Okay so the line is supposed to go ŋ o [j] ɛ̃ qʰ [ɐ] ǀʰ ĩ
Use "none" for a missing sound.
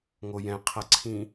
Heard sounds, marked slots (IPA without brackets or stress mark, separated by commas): j, ɐ